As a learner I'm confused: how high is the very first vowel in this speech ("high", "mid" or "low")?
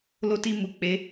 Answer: mid